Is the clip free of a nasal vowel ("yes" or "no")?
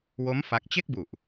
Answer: yes